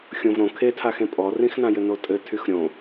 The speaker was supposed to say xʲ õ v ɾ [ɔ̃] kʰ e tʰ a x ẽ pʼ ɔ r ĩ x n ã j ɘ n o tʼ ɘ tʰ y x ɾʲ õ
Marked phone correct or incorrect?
incorrect: õ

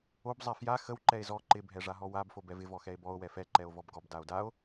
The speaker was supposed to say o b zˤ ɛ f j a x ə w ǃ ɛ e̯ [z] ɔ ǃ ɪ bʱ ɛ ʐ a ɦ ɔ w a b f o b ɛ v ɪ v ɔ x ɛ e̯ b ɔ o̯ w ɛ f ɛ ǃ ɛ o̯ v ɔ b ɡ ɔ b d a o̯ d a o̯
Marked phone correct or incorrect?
correct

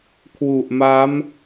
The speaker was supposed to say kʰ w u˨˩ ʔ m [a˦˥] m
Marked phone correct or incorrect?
correct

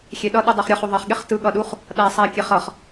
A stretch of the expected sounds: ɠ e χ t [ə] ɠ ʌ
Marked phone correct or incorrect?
incorrect: ɯ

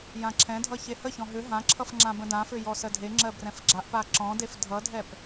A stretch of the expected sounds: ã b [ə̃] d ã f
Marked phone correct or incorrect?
correct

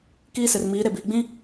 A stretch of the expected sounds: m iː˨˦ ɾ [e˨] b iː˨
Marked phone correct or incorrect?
correct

